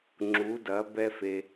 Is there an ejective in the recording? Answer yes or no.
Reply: no